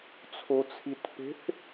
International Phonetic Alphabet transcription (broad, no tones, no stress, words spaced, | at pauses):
t͡sʰot͡sʰitpe̤θ